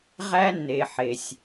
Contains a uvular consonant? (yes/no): yes